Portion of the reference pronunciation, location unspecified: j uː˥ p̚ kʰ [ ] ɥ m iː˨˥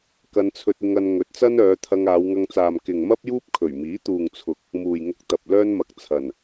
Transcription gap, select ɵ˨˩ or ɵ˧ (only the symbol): ɵ˨˩